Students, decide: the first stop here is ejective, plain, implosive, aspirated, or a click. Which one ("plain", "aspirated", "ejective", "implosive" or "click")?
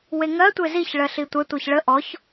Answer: plain